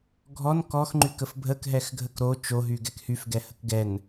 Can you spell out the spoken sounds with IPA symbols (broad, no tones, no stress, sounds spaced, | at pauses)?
ɡʱ ɔ n k ɔ x ŋ͡ǃ y k ə f bʱ ə k ɦ ɛ x ɡʱ ə k ɾ o t͡ʃ o ɦ y ɡ ɛ k h y f ɡ ɛ h ə k ɡ ɛ n